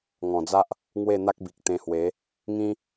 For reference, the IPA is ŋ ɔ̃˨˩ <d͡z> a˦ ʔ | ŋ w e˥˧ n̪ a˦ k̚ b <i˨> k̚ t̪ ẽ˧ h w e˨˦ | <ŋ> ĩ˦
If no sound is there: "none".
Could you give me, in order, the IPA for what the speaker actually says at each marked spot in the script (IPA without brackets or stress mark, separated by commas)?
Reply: d͡z, i˨, ŋ